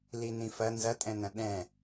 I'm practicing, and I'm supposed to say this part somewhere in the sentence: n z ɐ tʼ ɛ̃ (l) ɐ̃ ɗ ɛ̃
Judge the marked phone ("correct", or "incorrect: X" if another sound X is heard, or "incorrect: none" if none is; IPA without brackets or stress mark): incorrect: n